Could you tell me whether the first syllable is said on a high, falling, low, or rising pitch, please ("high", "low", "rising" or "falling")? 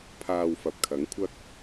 low